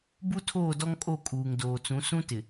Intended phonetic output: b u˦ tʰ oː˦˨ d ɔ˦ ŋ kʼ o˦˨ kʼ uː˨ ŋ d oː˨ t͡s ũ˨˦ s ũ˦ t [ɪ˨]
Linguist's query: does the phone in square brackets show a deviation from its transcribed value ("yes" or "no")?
no